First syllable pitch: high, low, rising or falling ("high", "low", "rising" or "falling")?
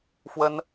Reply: high